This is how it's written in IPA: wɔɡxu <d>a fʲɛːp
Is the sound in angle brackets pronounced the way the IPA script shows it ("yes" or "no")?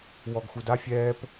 yes